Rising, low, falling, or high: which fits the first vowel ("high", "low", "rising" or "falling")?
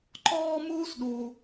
high